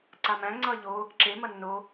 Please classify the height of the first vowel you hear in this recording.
low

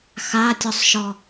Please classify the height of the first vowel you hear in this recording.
low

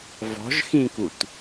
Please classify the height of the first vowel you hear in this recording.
mid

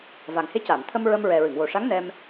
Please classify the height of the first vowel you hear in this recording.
low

